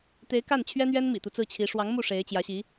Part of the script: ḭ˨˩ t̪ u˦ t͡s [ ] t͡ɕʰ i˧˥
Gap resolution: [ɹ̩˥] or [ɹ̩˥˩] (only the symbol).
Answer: ɹ̩˥˩